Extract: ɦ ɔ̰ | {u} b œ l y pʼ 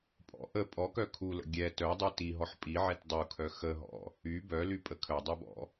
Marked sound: incorrect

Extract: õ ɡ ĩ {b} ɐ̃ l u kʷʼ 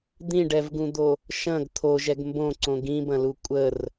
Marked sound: correct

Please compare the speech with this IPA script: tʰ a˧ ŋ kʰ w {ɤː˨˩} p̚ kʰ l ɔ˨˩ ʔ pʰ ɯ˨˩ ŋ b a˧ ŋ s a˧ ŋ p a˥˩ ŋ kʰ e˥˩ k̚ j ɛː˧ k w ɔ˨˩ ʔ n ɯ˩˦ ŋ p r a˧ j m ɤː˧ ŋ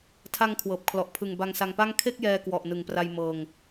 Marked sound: correct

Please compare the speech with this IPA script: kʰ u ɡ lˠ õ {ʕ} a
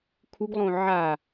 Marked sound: correct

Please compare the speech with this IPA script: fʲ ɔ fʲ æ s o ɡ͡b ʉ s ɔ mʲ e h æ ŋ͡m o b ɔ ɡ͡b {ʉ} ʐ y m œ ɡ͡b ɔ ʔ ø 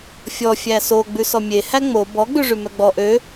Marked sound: correct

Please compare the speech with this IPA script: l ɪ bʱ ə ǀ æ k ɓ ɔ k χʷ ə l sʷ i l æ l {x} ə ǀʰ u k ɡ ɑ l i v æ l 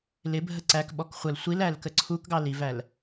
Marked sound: incorrect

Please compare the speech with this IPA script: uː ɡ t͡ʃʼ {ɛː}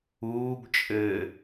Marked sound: incorrect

